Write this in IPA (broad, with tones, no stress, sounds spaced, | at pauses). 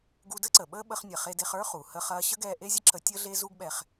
ɡ u˧ d ə˥ ǀ ə˩ ɓ əː˥ ɓ ə˧ χ nʲ ɐ˩ χ e˧ d e˧ χ ə˞˥ χ u˩ h ə˧ χ ɐː˧ ɕ ə˥ ɡ ɛː˧ ʔ e˥ zʲ ə˥ ǁ ə˧ tʲ əː˥ ɮ eː˥ z u˥ ɡ ɓ ɛ˧ χ